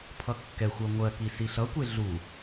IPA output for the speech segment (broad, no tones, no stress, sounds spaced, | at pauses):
pʰ ʌ kː ɛ xʷ ɜ ŋʷ ɜ k i s i ɬ ʌ kʷ e ɮ u